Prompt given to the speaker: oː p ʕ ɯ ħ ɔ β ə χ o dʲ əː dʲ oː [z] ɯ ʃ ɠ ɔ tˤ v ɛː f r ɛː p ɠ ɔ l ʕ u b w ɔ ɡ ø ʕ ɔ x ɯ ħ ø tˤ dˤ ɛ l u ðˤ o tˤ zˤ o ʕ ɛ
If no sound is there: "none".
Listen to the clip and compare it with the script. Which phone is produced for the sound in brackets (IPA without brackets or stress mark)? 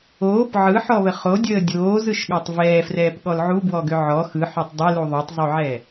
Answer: z